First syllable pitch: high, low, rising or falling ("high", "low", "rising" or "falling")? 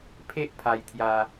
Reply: high